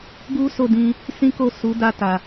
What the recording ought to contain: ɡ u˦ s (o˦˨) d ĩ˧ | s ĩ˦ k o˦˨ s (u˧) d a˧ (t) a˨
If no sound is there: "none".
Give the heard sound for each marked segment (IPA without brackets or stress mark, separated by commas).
o˦˨, u˨˦, t